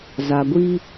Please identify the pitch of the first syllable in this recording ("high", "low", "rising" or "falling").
low